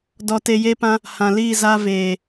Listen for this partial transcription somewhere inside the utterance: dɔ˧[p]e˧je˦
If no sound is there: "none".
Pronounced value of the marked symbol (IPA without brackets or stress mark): t